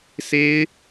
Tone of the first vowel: high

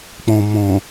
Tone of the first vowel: low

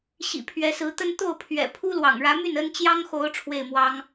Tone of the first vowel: low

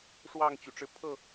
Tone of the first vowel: falling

